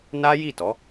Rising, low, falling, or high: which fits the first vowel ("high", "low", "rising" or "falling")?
high